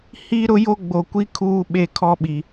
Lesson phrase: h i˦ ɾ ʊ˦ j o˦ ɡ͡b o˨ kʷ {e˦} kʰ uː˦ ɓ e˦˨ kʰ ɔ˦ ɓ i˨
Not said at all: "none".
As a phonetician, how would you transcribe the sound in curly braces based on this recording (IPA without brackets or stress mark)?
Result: i˦